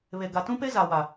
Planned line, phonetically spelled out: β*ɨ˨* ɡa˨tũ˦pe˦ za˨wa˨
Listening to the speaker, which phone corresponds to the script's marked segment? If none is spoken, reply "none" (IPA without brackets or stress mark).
e˨